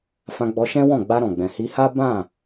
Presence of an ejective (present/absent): absent